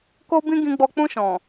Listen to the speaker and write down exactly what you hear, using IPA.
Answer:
ko˦bĩ˦ ɡĩ˧ɡ͡bɔ˧ k͡pũ˧ʃɔ̃˨

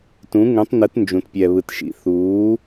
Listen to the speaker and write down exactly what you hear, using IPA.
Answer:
tũ˩˥ŋũ˩˥tˤnɯ˩˥t nd͡ʒũ˩tpʲɛ˩βɯ˩tʃḭ˩ θuː˩˥

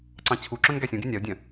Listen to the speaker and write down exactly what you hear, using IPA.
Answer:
ǀɑ̃t͡ɕʰuǁœ̃n ɡæsʲũɡy nʲaʊ̯dʲœ̃

